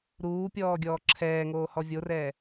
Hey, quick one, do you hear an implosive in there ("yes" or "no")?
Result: no